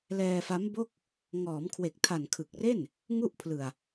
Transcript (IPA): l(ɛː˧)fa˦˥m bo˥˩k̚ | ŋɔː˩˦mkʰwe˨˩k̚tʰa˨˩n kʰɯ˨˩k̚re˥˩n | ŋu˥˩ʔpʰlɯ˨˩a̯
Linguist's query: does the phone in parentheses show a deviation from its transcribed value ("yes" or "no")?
no